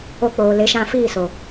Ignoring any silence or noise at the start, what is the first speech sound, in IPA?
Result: o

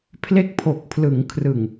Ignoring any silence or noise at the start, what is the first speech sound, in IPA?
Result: pʰ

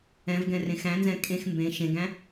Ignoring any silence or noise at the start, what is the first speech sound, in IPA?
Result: ɛ̃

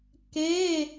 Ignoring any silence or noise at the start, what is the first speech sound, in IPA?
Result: k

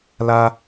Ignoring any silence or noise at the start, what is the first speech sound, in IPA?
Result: l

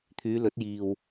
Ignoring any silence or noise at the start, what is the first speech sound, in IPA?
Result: t̪ʰ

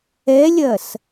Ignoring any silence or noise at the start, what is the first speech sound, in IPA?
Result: ɛ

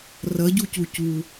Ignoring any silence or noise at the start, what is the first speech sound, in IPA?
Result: r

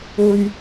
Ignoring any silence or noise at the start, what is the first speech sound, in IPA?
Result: ɵ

